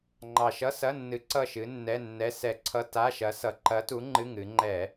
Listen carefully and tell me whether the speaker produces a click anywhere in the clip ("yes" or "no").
yes